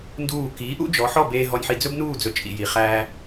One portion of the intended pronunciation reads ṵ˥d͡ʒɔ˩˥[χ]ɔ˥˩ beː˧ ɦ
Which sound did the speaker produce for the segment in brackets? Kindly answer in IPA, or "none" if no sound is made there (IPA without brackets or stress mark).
ħ